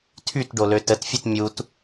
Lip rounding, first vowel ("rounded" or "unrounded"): rounded